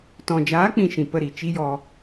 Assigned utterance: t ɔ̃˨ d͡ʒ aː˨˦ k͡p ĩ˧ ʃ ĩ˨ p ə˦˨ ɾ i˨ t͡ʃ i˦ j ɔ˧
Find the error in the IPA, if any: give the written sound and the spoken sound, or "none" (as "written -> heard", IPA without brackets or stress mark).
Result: none